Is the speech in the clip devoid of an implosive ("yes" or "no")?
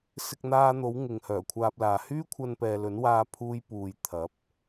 yes